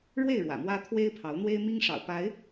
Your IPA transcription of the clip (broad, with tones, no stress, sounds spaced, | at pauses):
ɻ w e˥˨ ɪ̯ ɻ w ä̰˨˩ m w ä˦ t̪ʰ w e˦ ɪ̯ pʰ ɑ˨˦ ʊ̯ n̪ w e˦ ɪ̯ m i˦ ŋ ʂ ɑ̰˨˩ ʊ̯ p a˨˦ ɪ̯